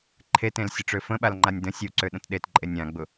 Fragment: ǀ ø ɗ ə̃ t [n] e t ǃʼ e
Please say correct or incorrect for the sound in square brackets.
incorrect